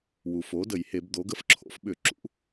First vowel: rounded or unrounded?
rounded